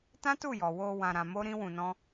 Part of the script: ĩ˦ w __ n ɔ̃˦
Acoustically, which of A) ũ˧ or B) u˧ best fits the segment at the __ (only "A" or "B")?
A